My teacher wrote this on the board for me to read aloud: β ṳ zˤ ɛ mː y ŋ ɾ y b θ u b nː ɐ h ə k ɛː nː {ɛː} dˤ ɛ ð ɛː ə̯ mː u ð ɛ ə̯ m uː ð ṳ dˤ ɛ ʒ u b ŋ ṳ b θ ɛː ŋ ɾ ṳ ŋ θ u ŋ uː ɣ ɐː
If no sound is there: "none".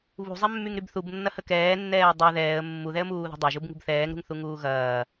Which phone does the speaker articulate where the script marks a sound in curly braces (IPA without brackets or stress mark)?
ɛː